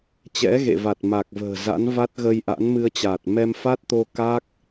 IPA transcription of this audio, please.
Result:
t͡ɕ ɛ̰˧˥ ɣ ḛ˧˨ v a˨˩ t̚ m a˨˩ k̚ v ə̤ː˨˩ z a̰˧˥ n v a˦˥ t̚ ɣ ə˧ j ʔ a̰˧˥ n m ɨ˧ ə̯ t͡ɕ aː˨˩ t̚ m ɛ˧ m f a˦˥ t̚ t̪ o˧ k a˦˥ k̚

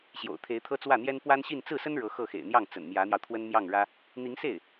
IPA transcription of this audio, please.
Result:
ɕ j o̰˨˩ ʊ̯ t̪ʰ e˧˥ ɪ̯ t̪ʰ ɤ˥ t͡s w ä˥˩ n̪ j ɛ˥ n p w a˥ n ɕ i˥˧ n t͡s ɹ̩˥˩ s ə˥ n ɻ ɤ˧˥ x ɤ˥˩ x ḛ˨˩ ɪ̯ n̪ j ɑ˥˩ ŋ t͡s ə̰˨˩ n m j ä˧˥ n̪ j ɑ˧ ʊ̯ t̪ʰ w ə˥ n m j ɑ˥˩ ŋ ɻ ä˥ | n̪ i˧˥ ŋ s e˥˩ ɪ̯

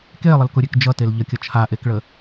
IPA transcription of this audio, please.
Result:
k e lˠ ə l k ʊ ɾʲ e k d͡ʒ ʌ t e l ʎ ə kʲ ʌ t͡ʃʰ a ʔ e k ɭ ə

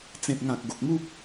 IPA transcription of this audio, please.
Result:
t͡s ẽ˨ p̚ ŋ ã˨ k̚ ɡ o˨ k̚ m u˦ p̚

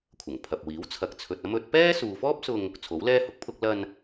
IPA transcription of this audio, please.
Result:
kʷʰ ɐ˨˩ ŋ pʰ ɐ˨ p̚ w iː˨˥ w t͡sʰ ɐ˨ k̚ t͡sʰ ɵ˨ t̚ ɐ˥ m ɵ˨˥ t̚ p ɛː˥ s uː˨ f ɔː˥ p̚ s ʊ˧ ŋ | t͡sʰ o˨˥ w l ɛː˥ h ʊ˧ k̚ pʰ ʊ˧ k̚ l ɐ˧ n

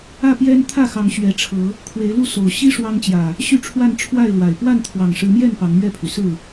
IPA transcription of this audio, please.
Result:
ä˥˨ p j ɛ˦ n t̪ʰ ä˥˨ x ɑ˨˦ ŋ ɕ ɥ ɛ˨˦ ʈ͡ʂʰ ɤ˨˦ | kʰ w e˨˦ ɪ̯ l u˥˨ s o˨˩ ʊ̯ ɕ i˦ ʂ w ɑ˦ ŋ t͡ɕ j ä˨˩ | ɕ y˥˨ ʈ͡ʂʰ w a˥˨ n ʈ͡ʂʰ w a˥˨ ɪ̯ l w a˨˩ ɪ̯ p w a˥˨ n t̪ʰ w ɑ˨˩ ŋ ʂ ɻ̩˨˦ m j ɛ˥˨ n p ɑ˨˦ ŋ m ɥ ɛ˥˨ pʰ y˩ s ɹ̩˥˨

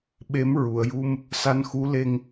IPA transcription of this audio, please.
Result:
ɓ e˧˥ m ɹ u˨˩˨ ə̯ j u˧ m | s a˧ n x u˧˥ l e˧ ŋ

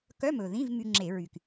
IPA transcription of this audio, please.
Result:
k œ˧˥˧ m ɵ˨˩ ð ĩ˧˥˧ v m y˧ ŋ͡ǁ e˧˩˧ ɹ y˨˩ k

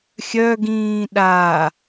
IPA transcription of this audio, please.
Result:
xʲ œ ɡ ĩː ɗ a

